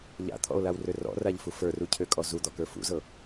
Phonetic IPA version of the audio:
ʎ a̰ t̪ʰ ɔ̰ o̯ l a w r ø r ɔ̰ r a ʎ f u f ə˞ r u cʰ ø kʼ ɔ z u d̪ ɔ k ə˞ f ṵ z ɤ

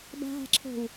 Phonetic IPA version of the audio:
b a̤ ɦ a̤ ǁʰ o̤ w

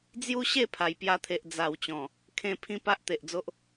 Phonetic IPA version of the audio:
d͡z j u˦ ɕ e˥˧ pʰ a˨˩ j p j a˧ t̪ʰ e˨ ʔ d͡z a˨˩ w t͡ɕ ɔ̃˨˩ | kʰ ẽ˧ pʰ ĩ˦ p a˦ ʔ t̪ e˨ ʔ d͡z o˦ ʔ

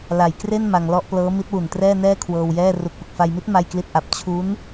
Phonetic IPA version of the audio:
l a˩˦ j k r e˥˩ n m a˧ ŋ l ɔ˥˩ ʔ p l ɤː˦˥ m i˦˥ t̚ w u˨˩ n t r ɛː˥˩ n ɛː˥˩ kʰ w ɤː˧ w j ɛː˥˩ r u˨˩ k̚ p ɯ˨˩ k̚ f a˧ j m i˦˥ t̚ m a˥˩ j k l i˥˩ t̚ ʔ a˦˥ p̚ t͡ɕʰ u˦˥ n

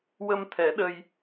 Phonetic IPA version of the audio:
w ə˧ m t̪ʰ ɛ˨˩˦ ɗ ə˧ j

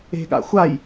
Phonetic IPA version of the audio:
e̤ ɠ a̰ xʷ a j

